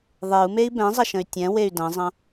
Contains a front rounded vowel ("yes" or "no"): yes